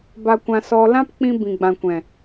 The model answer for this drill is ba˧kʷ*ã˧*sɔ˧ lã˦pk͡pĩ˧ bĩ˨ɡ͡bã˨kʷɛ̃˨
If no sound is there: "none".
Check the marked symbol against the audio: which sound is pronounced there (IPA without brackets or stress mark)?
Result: ã˧